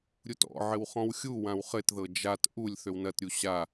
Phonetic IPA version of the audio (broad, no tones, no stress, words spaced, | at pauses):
ɾʲutɔ̰ ʕɘwχɔ̃wxʲu wãwχɘtðɤ d͡ʒat ʔulʲ θøwnɐtɾʲu ɕa